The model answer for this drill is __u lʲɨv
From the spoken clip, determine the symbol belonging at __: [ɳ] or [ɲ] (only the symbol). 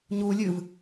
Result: ɲ